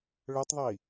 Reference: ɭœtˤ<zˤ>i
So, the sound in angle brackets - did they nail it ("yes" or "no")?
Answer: no